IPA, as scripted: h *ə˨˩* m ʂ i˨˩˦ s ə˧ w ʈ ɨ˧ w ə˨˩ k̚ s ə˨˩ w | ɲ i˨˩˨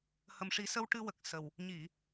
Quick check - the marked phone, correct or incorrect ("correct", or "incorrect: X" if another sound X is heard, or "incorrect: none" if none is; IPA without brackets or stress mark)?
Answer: correct